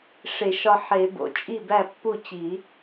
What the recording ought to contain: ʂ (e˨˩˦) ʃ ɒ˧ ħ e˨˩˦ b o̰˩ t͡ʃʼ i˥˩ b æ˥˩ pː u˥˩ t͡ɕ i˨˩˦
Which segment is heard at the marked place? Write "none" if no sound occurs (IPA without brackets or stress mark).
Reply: e˨˩˦